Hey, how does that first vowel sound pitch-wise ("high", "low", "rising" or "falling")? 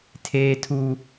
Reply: high